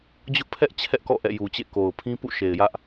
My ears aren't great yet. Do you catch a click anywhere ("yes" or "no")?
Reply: no